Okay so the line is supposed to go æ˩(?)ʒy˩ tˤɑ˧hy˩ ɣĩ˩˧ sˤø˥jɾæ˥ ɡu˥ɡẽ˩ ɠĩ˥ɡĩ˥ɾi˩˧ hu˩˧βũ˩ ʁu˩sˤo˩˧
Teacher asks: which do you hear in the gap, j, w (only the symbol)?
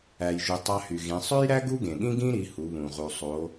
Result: j